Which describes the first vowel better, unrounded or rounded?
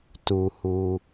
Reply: rounded